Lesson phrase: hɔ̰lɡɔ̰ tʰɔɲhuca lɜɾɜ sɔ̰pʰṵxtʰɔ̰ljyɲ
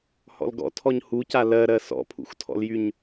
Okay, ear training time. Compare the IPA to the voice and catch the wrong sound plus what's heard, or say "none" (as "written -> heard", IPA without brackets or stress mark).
none